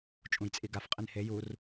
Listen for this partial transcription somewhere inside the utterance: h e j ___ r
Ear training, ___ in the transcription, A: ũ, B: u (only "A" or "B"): B